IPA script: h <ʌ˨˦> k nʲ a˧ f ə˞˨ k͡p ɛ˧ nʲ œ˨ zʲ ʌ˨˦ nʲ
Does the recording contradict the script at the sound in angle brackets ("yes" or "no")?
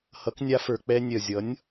no